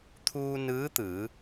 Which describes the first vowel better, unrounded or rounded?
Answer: rounded